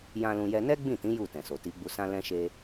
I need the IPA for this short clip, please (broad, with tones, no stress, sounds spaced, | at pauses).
j ã˧ l ũ˧ j ɛ˧ n ɛ˦ ɡ͡b ĩ˦˨ t ĩ˨˦ j u˦˨ t ɛ̃˨ s o˨ t i˨˦ ɡ͡b u˧ s ã˦ l ɛ̃˦ ʃ e˦